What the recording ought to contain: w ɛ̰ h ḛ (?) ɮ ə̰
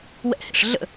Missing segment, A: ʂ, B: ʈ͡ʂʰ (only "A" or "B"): A